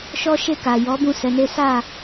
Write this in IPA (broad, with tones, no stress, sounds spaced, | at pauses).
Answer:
ʃ ɔ˦ ʃ e˦˨ k a˨ j ɔ˨˦ b ũ˦˨ s ɛ˨˦ n e˦ s a˦˨